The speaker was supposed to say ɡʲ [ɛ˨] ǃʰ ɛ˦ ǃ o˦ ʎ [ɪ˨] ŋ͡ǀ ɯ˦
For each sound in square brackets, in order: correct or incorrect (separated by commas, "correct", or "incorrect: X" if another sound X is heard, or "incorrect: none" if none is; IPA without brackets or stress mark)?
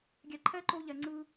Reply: correct, incorrect: ɛ˨